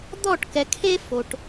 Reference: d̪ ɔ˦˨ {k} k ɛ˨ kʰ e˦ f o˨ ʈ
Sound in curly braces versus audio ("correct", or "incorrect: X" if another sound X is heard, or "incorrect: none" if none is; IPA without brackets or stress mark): incorrect: ʈ